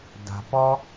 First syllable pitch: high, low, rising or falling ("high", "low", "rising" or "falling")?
low